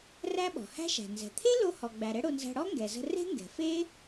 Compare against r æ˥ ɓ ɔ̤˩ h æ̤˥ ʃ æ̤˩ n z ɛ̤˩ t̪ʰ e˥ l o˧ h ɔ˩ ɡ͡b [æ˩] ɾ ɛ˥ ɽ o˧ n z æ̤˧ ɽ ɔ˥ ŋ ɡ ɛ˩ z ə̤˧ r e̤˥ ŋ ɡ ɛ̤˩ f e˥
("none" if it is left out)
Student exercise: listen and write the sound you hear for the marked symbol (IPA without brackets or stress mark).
æ˩